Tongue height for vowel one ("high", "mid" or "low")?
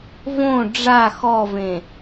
mid